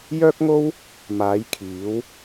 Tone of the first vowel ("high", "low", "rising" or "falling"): high